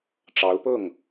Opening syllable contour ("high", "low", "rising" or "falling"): rising